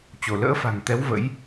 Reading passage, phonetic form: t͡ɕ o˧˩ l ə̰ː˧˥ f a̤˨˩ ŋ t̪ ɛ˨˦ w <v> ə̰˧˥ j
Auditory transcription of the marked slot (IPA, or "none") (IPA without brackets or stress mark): v